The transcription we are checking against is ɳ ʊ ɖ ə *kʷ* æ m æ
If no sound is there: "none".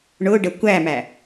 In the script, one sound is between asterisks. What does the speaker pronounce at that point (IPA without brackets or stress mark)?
kʷ